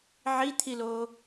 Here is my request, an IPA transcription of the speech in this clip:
ʕ i t̪ʰ i l o

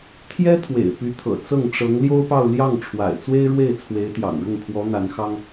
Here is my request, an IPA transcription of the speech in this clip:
t̪ʰ j ɛ˥ t̪ʰ w ḛ˨˩ ɪ̯ p y˧˥ t̪ʰ ɤ̰˨˩ t͡s ɤ˥˩ ŋ ʈ͡ʂ ɤ˧˥ ŋ l j o˥ ʊ̯ p ɑ˥˧ ʊ̯ l j ɑ˥˩ ŋ ʈ͡ʂʰ w a̰˨˩ ɪ̯ t͡s w e˥ ɪ̯ ɻ w e˥˩ ɪ̯ t͡sʰ w e˧˥ ɪ̯ t̪ j ɑ̰˨˩ ŋ ɻ ʊ˥˩ ŋ kʰ w ɔ˧˥ n̪ a˧˥ n x ɑ˥ ŋ

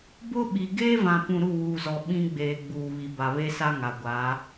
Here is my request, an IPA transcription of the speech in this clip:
b ʊ˦ ɓ i˨ ɡ eː˦ v ã˨ p ũ˨ ɾ u˦˨ w uː˨ z ɔ˨ ɓ ĩ˦ ɡ͡b eː˨ ɡ͡b uː˨ β i˨ b a˨ β e˦ s a˦ ŋ a˨ ɡʷ aː˨˦

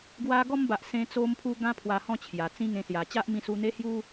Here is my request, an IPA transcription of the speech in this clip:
ɡ w a˧ ɡ ɔ˧ m b a˨ ʔ s ẽ˧ t͡s o˧ m pʰ u˧ ɡ ã˦ pʰ w a˧ h ɔ̃˥˧ t͡ɕʰ j a˨˩ t͡s ĩ˦ ŋ ẽ˧ s j a˨˩ t͡ɕ a˦ ʔ m ĩ˧ s u˧ n̪ e˦ h j u˦

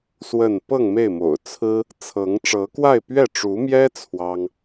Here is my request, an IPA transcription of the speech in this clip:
s w ə˥˧ n p ɤ˥˧ ŋ m e˥˩ ɪ̯ m o̰˨˩ ʊ̯ t͡sʰ ɹ̩˥ | t͡sʰ ɤ˧˥ ŋ ʈ͡ʂ ɤ˧˥ k w a˥˧ ɪ̯ p ɥ ɛ˥˩ ʈ͡ʂ u˧˥ m j ɛ˥ t͡sʰ w ɑ˥ ŋ

